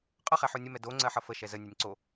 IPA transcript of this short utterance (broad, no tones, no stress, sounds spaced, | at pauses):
qʼ ʌ χ ɛ ħ o nʲ ə m ɛ d o ŋ͡ǀ ɜ ħ ʌ f ə ʃ ɛ z ə nʲ ɛ nʲ ǀ o